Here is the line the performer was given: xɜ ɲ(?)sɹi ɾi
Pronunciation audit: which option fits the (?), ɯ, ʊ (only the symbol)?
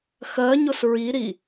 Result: ʊ